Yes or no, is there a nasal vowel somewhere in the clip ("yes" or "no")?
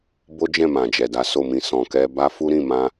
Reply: yes